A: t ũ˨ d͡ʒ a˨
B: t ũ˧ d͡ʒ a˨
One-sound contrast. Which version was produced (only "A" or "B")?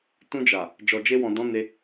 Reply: B